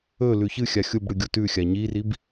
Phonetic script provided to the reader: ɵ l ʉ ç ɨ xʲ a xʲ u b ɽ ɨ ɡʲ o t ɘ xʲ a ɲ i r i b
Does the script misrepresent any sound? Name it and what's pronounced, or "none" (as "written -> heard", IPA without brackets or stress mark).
ɘ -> ʉ